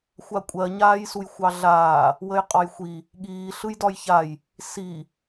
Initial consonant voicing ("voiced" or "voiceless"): voiceless